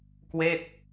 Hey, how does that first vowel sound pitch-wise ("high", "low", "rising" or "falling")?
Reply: falling